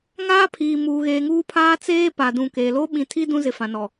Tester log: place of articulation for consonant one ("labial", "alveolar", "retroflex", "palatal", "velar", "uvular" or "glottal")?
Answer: velar